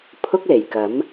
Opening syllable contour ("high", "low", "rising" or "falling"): high